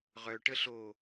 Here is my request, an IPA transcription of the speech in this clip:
ʁ œ ʈ ə ɬ o

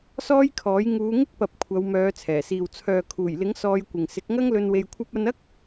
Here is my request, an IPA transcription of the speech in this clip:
s ɔː˥ j kʰ ɔː˨˥ j ŋ uː˨˧ ŋ ɪ˥ k̚ p ɐ˨ p̚ kʷʰ ɐ˨˧ w m œː˨˧ t͡sʰ ɛː˨˩ s iː˨ w t͡sʰ œː˨ kʰ uː˨˩ j l ɪ˨˥ ŋ s ɔː˧ j kʷ ɪ˨ ŋ s ɪ˨˥ k̚ ŋ ɐ˥ ŋ l ɵ˧ n w e˧ j kʷʰ ɐ˥ p̚ ɐ˧ n ɐ˥ k̚

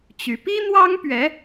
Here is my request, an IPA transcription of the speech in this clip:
t͡ɕ y˧˥ p i˥ n̪ w ɑ˥ ŋ p ɥ ɛ˧˥

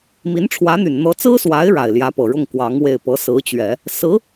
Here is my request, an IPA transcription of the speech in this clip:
m i˧˥ n ʈ͡ʂʰ w ä˧˥ n̪ y˨˩ n n̪ ɤ˧˥ t͡s ɹ̩˥ s w a˧˥ ɪ̯ ɻ a˨˩ ɪ̯ l j ä˧˥ p ɤ˨˩ ɻ ʊ˥˩ ŋ k w ɑ˧˥ ŋ w e˥˩ ɪ̯ p ɤ˧˥ s ɹ̩˧˥ t͡ɕ ɥ ɛ˨˩˦ | s ɹ̩˧˥

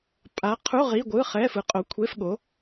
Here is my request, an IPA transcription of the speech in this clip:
pʼ a˨˥ qʰ u˧˥˧ ʁ i˧˥˧ ɡʷ ɯ˧˥˧ χ ɛ˧˥˧ f ɯ˨˥ qʼ o˨˥ kʷʰ e˧˥˧ f ɠ o˨˥

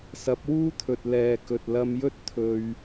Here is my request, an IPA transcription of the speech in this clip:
s ɐ˨˥ p̚ w uː˥ t̪ʰ ɵ˨ t̚ l ɛː˨ k ɵ˨ t̚ l ɐ˧ m j ɵ˥ t̚ t̪ʰ ɵ˧ ɥ

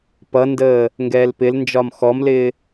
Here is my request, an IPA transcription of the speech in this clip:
p ʌ n d əː | ŋ ɡ ɛː l p ɪ l n d͡ʒ ɒ m x ɔ m l ɪː

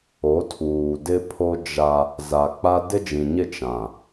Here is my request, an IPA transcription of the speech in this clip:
o˨˦ tʰ uː˨ d ɪ˦ pʰ o˦ d͡ʒ a˦ | z a˨ k͡p a˦ d ɪ˦ d͡ʒ ĩ˨ ɲ ɪ˦˨ t͡ʃ ã˨

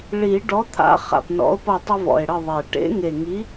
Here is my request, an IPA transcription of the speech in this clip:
ɭ i˨˩˦ ɖ ɔ˨˥ t̪ʰ a̰˨˥ χ a̰˨˩ p n ɔ̰˨˥ o̯ p ʌ˦˨ tˤ ə˦ v ɔ̰˨˩ e̯ ɽ ə˦˨ ðˤ e˨˩ ʈ ḛ˨˥ ŋ e˨˩ ŋ i˨˥

